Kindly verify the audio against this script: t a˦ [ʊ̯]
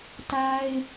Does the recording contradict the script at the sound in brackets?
yes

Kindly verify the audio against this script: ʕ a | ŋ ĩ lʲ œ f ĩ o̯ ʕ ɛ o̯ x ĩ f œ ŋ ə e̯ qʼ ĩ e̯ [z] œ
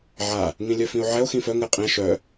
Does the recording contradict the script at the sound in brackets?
yes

